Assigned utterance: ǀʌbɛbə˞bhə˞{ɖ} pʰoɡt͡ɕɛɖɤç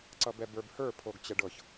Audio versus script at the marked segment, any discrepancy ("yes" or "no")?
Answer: yes